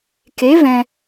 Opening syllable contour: rising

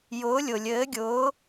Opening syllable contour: rising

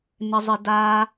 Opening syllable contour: high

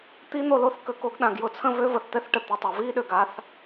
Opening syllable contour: high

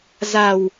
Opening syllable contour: low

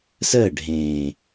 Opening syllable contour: falling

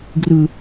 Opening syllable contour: high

